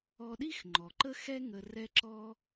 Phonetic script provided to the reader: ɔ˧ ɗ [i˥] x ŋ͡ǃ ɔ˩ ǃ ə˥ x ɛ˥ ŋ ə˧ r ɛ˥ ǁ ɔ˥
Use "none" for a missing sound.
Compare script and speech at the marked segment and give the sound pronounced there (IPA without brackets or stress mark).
i˥